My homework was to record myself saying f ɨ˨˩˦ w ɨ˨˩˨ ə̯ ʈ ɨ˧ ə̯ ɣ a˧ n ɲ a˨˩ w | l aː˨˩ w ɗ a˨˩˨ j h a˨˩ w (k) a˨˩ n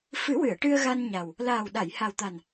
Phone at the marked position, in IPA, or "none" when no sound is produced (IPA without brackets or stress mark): t̪